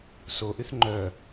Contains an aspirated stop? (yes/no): no